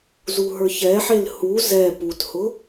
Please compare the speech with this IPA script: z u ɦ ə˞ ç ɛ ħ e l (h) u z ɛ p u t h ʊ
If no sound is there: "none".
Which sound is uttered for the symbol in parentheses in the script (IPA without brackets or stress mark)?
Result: h